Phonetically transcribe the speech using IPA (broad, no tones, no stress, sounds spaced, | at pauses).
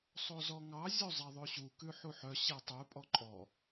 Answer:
sˤ o z ɔ ŋ ɑ zʲ o zˤ ɛ ðˤ ʉ ɕ u k ʉ ħ u ħ œ ɕ e tˤ ʉ pʼ ɔ ǃʼ ɔ